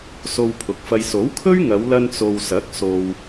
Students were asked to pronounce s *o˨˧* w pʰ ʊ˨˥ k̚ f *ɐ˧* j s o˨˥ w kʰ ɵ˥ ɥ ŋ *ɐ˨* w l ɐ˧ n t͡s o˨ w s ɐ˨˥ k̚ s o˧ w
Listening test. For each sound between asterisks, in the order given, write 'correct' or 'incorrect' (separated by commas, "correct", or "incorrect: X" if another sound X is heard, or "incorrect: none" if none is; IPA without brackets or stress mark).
incorrect: o˧, correct, incorrect: ɐ˨˧